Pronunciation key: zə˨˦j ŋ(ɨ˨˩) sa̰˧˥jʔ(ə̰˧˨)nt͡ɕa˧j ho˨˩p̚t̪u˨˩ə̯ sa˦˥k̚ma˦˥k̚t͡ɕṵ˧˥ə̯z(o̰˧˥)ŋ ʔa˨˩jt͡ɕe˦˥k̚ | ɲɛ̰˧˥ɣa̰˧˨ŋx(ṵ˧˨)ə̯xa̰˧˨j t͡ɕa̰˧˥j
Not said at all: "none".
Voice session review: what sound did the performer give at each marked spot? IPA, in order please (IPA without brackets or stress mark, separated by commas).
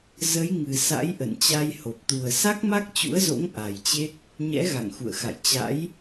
ɨ˨˩, ə̰˧˨, o̰˧˥, ṵ˧˨